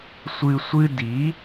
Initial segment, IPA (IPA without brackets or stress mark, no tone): sʷ